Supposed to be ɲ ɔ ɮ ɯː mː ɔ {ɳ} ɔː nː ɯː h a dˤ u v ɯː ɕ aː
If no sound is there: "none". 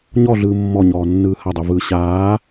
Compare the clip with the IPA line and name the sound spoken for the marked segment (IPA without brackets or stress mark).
ɲ